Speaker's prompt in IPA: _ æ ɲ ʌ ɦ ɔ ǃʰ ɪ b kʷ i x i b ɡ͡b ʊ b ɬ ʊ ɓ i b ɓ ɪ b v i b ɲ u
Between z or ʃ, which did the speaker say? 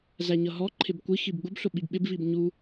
z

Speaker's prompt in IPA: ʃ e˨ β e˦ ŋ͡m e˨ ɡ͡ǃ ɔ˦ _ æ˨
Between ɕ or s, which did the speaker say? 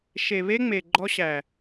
ɕ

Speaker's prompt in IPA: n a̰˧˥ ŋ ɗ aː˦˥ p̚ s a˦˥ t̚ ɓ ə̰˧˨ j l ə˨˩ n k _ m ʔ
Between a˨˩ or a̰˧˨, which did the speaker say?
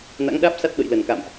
a̰˧˨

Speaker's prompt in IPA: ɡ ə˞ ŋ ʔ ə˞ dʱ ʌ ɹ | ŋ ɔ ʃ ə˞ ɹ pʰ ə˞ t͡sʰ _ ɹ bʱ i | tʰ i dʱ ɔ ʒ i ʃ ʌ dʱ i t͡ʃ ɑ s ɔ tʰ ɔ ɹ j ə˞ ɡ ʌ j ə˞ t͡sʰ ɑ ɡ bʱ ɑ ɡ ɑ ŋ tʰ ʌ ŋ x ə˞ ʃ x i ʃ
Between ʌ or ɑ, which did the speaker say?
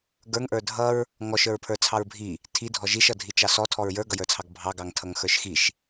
ɑ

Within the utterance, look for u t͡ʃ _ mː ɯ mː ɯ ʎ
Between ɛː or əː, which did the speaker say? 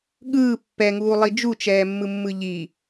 ɛː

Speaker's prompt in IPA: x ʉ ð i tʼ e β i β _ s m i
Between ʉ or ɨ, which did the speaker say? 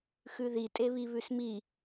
ʉ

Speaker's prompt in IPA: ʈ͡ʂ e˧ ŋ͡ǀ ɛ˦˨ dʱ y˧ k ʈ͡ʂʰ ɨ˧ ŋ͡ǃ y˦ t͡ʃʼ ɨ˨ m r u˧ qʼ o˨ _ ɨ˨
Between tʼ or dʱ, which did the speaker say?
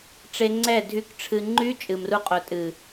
tʼ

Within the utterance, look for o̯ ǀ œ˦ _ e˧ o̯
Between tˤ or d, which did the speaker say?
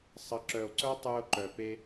tˤ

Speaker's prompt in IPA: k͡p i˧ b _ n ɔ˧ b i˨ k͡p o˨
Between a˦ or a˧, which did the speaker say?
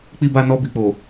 a˧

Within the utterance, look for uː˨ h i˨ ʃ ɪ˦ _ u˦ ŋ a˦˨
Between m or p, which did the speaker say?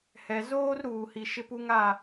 p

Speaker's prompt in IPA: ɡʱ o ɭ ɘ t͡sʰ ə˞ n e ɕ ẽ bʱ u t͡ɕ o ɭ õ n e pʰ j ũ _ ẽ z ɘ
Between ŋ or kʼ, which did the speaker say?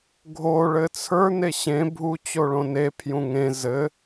ŋ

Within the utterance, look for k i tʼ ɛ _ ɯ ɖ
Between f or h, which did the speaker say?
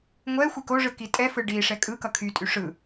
f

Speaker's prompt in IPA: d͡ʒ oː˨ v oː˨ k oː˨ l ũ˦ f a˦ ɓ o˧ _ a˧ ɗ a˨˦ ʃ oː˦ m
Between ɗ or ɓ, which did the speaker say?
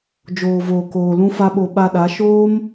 ɓ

